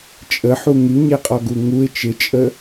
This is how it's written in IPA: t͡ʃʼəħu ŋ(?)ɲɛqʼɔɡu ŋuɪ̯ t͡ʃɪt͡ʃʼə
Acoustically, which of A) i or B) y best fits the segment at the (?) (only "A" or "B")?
B